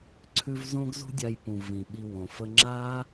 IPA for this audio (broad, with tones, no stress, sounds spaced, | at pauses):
ǀʰ ʉ˦ v z õ˦ ɡ z ṳ˦ dʲ a˧ j p ũ˨ v ĩ˨ ɓ i˧ w õ˨ f ə˧ ŋ͡ǁ a˦